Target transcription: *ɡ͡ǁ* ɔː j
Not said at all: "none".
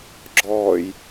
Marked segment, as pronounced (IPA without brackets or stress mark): ɡ͡ǁ